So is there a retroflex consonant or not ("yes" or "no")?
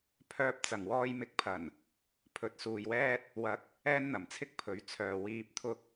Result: no